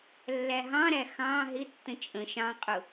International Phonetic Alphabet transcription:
lː æ ɦ ɑ̃ ɾ æ x ɑ̃ ɦ ɪ tː ə̃ t͡ʃʼ ə̃ ʃ ɑ̃ qʼ ʊ

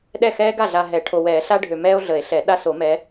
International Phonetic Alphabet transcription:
ɗ ɛ˥˩ x ɛː˦ ɡ a˥˩ ɮ a˨ ɦ ɛ˨˩˦ ʈʰ o˨ w ɛː˨˩˦ ɬ a˦ ɖʱ ø˨ m ɛː˦ o̯ ɮ ə˨˩˦ e̯ ɬ ɛ˨˩˦ ɗ a˦ s o˨˩˦ m ɛ˨˦

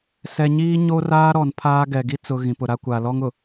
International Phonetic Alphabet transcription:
s ɛ˨ ɲ iː˦ ɲ o˦ r aː˦ ɾ ɔ˨ n pʰ aː˦ ɡ ɛ˨ ɡ i˦ t͡s ʊ˨ ɣ ĩ˨ p ʊ˨ ɾ a˦ kʷ a˨ l ɔ˦ ŋ ʊ˨

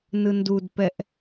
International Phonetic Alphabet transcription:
n ɯ n d u d p ɛ ʔ

